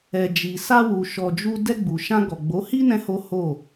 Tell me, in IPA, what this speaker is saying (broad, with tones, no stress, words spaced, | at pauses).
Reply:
ɛ˨d͡ʒi˨sa˧wu˨ ʃɔ˧d͡ʒu˦ dɛ˧ɡ͡bu˨ʃã˧ɡɔ˨ ɡ͡bo˨˦hi˦ nɛ̃˦ho˦ ho˦˨